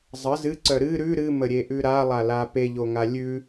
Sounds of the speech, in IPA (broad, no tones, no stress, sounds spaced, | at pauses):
zˤ ə z ɨ ǀ œ ɾ ɨ ɾ ʉ ɾ ɨ m ə ɾʲ e ʔ ʉ ɾ a lˠ a l a p e ʎ o ŋ a lʲ ʉ